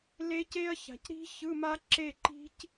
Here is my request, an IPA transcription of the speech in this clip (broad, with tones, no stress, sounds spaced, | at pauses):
l e˦˥ c e˦˥ ɐ̯ ç a̤˨˩˦ c ɾ i̤˦˥ ç ɯ˧˥˧ m a˦˥ ǁ e˥˨ ǃ i̤˦˥ c